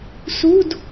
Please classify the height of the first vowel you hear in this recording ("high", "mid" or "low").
high